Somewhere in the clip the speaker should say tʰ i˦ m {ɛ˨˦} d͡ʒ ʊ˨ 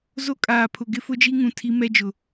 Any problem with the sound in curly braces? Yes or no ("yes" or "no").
yes